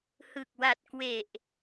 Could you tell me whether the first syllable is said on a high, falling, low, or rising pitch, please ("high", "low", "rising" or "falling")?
low